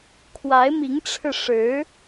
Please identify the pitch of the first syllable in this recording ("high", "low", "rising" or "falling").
rising